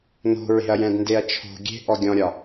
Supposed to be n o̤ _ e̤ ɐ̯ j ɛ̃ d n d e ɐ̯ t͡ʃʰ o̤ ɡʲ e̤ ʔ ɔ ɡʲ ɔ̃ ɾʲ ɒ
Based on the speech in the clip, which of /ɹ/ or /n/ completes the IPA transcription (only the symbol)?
ɹ